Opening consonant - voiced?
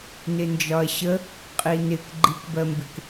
yes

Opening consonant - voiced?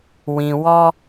yes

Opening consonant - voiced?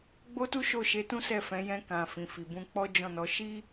yes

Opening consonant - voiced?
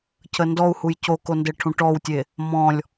no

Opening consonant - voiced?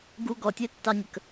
yes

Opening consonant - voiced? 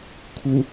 no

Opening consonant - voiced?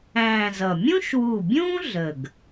yes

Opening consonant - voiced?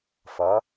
no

